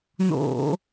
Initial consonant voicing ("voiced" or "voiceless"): voiced